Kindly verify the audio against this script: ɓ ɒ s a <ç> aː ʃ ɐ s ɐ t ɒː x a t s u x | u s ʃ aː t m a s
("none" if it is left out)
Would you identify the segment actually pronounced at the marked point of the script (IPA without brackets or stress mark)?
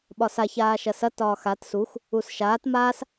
ç